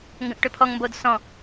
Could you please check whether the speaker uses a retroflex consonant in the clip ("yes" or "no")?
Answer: yes